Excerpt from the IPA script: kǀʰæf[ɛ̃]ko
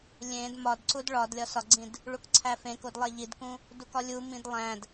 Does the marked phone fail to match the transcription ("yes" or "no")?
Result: yes